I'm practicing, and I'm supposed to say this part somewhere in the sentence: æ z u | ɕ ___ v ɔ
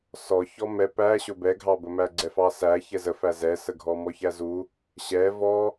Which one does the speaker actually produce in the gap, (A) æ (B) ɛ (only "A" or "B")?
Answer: B